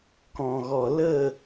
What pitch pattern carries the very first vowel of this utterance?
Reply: low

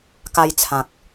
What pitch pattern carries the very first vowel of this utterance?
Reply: high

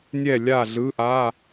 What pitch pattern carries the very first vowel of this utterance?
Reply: falling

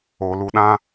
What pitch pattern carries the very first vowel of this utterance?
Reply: low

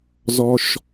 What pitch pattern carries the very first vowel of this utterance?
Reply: low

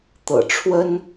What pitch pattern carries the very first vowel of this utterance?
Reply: low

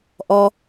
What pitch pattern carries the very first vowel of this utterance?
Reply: high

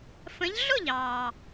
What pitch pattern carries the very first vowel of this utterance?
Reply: rising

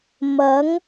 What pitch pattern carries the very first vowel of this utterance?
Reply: rising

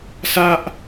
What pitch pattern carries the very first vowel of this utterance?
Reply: high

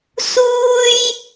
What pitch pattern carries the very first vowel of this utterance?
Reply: high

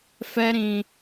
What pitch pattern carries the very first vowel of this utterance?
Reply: high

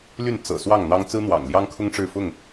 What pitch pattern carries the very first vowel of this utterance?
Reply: falling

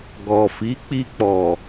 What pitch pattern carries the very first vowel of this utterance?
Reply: low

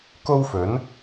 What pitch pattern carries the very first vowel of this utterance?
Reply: high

